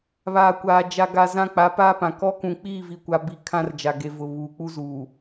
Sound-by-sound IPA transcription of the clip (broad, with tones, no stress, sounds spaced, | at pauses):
β aː˨ kʷ aː˨ d͡ʒ a˨ ɡ a˨ z ã˦ k͡p a˨˦ p aː˦ p ã˨ k ɔ˦ k ũ˨ k͡p iː˦˨ v i˨ kʷ a˦ b iː˦ kʰ ã˦ r d͡ʒ a˨ ɡ e˨ v ʊ˨ β uː˨ k͡p u˦ z uː˨